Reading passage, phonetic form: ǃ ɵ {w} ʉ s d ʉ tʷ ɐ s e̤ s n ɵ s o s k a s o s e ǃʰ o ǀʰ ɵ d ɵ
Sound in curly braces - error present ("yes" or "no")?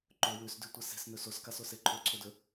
no